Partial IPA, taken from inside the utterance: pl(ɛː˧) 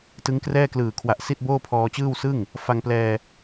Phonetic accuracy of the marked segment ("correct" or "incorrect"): correct